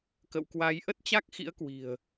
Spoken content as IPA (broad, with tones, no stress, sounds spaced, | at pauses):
k ə̰˧˨ w k w a˨˦ j ʔ ə˦˥ t̚ t͡ɕ a˦˥ k̚ x ḭ˧˥ ə̯ k w i̤˨˩ ə̯